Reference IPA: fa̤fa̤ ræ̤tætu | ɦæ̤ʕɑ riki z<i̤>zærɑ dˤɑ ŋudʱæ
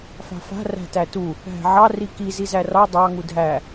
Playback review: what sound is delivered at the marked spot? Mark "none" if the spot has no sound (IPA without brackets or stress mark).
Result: i